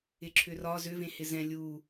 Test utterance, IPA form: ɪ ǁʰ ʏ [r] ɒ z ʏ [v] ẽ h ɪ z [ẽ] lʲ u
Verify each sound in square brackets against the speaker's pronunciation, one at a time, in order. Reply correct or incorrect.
correct, correct, incorrect: ɛ̃

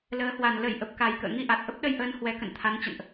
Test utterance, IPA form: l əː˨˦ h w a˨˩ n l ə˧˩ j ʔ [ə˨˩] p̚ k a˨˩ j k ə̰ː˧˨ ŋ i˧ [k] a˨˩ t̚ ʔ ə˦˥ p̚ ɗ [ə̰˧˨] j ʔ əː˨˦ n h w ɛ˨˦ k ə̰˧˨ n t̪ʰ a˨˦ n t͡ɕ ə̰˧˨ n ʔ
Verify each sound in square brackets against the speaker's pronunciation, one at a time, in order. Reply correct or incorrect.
correct, incorrect: ʔ, incorrect: ə˧

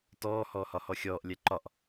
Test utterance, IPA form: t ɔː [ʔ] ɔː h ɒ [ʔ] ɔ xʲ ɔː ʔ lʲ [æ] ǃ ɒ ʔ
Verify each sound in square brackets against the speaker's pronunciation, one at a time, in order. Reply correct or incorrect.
incorrect: h, incorrect: h, incorrect: ɛ

